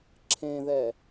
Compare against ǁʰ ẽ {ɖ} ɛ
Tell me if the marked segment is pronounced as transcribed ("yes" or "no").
no